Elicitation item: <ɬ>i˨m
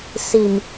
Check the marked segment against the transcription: incorrect: s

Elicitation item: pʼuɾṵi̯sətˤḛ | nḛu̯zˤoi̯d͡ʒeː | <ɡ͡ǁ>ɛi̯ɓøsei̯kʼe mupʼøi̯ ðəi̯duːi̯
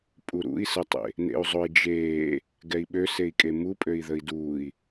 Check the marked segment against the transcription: incorrect: ɡ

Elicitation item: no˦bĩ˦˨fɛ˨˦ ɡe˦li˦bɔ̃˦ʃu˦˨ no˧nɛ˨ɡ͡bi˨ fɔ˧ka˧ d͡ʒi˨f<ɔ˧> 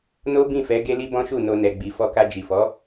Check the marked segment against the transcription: incorrect: ɔ˨˦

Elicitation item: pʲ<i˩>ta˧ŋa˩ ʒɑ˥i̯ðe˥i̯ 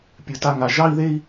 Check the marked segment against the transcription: incorrect: ɨ˩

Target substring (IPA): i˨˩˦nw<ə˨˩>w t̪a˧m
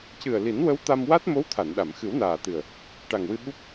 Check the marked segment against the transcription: incorrect: ə˧˥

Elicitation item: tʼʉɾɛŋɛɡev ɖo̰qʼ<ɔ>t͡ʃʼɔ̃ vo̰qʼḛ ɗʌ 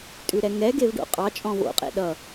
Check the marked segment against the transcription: incorrect: ɑ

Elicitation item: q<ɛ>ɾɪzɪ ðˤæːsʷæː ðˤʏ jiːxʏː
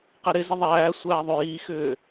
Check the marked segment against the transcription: correct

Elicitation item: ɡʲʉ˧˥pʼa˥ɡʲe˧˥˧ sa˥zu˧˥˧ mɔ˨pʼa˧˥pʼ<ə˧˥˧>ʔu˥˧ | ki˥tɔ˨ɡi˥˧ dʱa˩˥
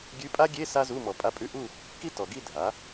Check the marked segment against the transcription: incorrect: ʉ˧˥˧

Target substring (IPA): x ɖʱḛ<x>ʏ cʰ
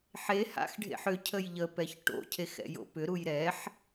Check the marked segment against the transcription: incorrect: ħ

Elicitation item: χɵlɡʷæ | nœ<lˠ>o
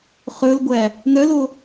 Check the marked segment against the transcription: incorrect: l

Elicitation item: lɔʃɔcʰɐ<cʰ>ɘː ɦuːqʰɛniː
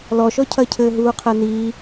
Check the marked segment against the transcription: correct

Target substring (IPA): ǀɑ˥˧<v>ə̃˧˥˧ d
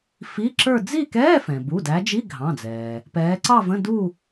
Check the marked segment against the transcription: correct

